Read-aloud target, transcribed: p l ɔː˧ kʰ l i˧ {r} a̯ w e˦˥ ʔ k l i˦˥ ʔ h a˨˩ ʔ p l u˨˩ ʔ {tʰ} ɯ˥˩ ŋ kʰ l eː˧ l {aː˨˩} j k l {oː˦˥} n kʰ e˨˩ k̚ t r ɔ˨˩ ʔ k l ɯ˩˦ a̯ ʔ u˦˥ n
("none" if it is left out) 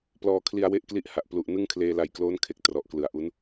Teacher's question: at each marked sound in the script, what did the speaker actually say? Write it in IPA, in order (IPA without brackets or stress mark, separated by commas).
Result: none, n, a˨˩, oː˦˥